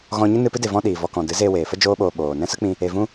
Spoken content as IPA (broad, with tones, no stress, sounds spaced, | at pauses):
ɣ ɔ̃˧ ɲ ɨ˦ n ɨ˧ p ɨ˦ d e˨ v ɔ̃˦ ɗ iː˨ v ɔ˧ k ɔ̃˨ d ɨ˨˦ z eː˧ w eː˨ f ə˦ d͡ʒ oː˧ ɓ oː˨ ɓ oː˨ n ɛ̃˦ s ə˦ k͡p ĩ˧ | e˨ v ũ˧